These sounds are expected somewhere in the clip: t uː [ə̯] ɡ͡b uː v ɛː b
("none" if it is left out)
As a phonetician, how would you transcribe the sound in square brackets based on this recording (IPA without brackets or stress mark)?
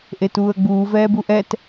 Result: ə̯